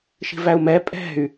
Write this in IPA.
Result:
ʃ i̤ v æ u̯ m ɛ pʼ ɛ̤ y̯

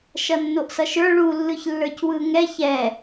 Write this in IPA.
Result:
ʃ ʌ nː o ʔ s ʌ ʃ ə˞ ɭ u lː ɯ ç lː ə˞ c w ɯ ŋ ɛ ç ɛ

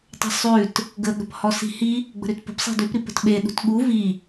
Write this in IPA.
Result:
tˤ ə̤ sˤ ʉ t | ɡ ə ɠ ə̤ p h ɔ s i̤ h i | ɡ͡b ə̤ ɾ ʉ t p ə̤ p sˤ i̤ d ʉ p ɾ i p ə̤ t ɓ e ɗ ṳ t ɠ u v i

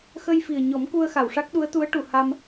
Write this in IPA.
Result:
x ə˧ j f i˨˩ ə̯ ɲ ɔ˨˩˦ m k u˧ ə̯ x a˨˩˨ w ʂ a˦˥ k̚ ɗ u˧˥ ə̯ t̪ u˧˥ ə̯ ʈ u˨˩˨ h a˧ m

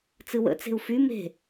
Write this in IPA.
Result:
t͡s ɨ w ə̰ t͡s e̤ u̯ f y m e̤

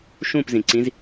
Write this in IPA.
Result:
ʃ ũ p z ĩ ǀ ĩ z

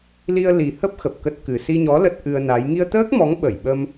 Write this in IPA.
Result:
l i˧ ə̯ l i˨˩ h ə˦˥ p̚ x ə˨˩ p̚ k ə˦˥ t̚ k ɨ˨˩ s i˧ ɲ ɔ˨˦ l ə˦˥ t̚ ʔ ɨ˧ ə̯ n a˨˦ j ŋ i˧ ə̯ t̪ əː˦˥ k̚ m ɔ˨˦ ŋ ɓ ə˧˩ j ɓ ə˧ m

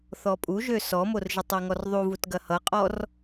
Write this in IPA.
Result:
θ ɔ pʼ u ʒ ø s ɔ m o r ʒ ə tˤ e ŋ ɔ r ðˤ u v u t ɡ ɐ h ʌ qʼ ɔ r

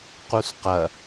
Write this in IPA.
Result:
q u s q ɐ

